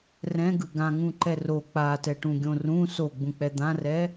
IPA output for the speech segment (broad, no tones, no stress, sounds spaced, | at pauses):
r ɛ̃ ɡ ɯ ɡ ã ŋ ũ ǃ ɛ r o k͡p a t ɛ ʈ ũ ɡʲ õ r ũ s o ɡ͡b ũ k͡p ɛ d̪ ã r ɛ